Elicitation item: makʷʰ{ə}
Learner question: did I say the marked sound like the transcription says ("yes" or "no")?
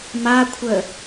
yes